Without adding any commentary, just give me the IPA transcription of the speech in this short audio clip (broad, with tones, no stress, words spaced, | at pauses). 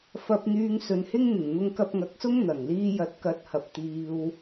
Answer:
fɐ˧p̚n̪yː˧ŋ sɵ˨˧nhɪ˥ŋn̪ɪ˨˩ŋ n̪ʊ˧ŋkɐ˧p̚ŋɐ˨˥k̚sʊ˥ŋ n̪ɐ˨˩ŋ liː˧jɐ˨˥t̚ kɐ˨˥t̚hɐ˨p̚ t̪iː˧w